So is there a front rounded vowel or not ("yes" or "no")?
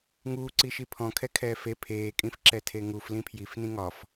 no